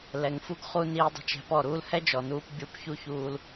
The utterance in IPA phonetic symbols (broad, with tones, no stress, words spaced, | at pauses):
lɛ˨ŋfu˦ɡ χu˧ niː˧dˤa̤˧t͡ʃ ɛ̤˧pɔ˦˨ɾuː˦l hɛ˦d͡ʒɔ˨nuː˧p bʲu˧pçu˦çuː˧l